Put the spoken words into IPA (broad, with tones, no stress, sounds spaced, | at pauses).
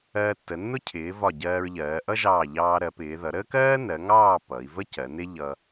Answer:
ɜː˧ tː ə˩˧ nː ʊ˥ cʰ ɪː˩˧ v ɒ˧˩ ɟ ɜː˧ ɹ ʎ ɜː˩˧ ʔ ʌ˥ ʒ ɑː˧˩ ʎ ɑː˧ ɾ ɜ˩˧ p ɪː˩˧ ð ʌ˩˧ ɾ əː˥ k ɜː˥ n ɜ˩˧ ŋ ɑː˥˧ p ʌ˩˧ i̯ v ə˥ c ɜ˩˧ n ɪ˥ ʎ ʌ˧